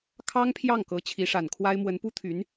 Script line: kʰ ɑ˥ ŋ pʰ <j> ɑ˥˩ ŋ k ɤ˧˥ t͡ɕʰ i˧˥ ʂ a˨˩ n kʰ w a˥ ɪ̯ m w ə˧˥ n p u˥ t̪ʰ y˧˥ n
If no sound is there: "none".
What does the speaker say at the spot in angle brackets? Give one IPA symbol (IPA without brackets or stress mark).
j